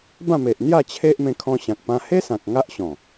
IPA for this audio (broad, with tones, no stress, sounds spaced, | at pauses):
b ã˥˧ m e˨ ʔ n̪ j a˥˧ t͡ɕʰ e˦ ʔ m ẽ˧ kʰ ɔ̃˧ ɕ ã˨ k̚ p ã˧ h e˦ s ã˨ k̚ ŋ a˦ ʔ ɕ ɔ̃˨˩